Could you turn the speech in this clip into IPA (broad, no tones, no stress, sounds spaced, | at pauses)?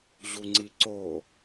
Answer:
ʑ u ŋ͡ǀ i ǀ o